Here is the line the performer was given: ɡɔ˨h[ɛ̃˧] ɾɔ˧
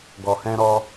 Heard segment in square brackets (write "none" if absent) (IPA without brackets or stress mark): ɛ̃˧